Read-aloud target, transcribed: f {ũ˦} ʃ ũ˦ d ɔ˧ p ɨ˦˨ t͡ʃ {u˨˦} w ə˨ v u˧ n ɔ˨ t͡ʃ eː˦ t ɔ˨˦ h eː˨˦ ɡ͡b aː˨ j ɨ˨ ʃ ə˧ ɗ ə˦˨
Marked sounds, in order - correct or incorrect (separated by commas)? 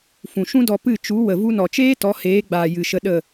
incorrect, correct